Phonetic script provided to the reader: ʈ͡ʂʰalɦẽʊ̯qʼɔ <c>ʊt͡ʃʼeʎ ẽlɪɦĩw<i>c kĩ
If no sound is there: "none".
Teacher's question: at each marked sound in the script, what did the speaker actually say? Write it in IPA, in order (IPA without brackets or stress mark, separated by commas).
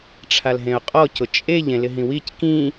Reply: c, i